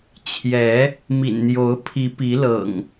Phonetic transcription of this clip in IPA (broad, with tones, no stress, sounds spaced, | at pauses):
t͡ɕʰ j ɛ˨˦ | m ḭ˨˩ n n̪ j o˨˦ ʊ̯ pʰ i˨˦ p i˨˦ l ɤ̰˨˩ ŋ